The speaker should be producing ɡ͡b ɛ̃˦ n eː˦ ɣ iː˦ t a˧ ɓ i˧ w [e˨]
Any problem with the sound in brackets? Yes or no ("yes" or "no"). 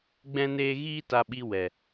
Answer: yes